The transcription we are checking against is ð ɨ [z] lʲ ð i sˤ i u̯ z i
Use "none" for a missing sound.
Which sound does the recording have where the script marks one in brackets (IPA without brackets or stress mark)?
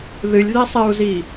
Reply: none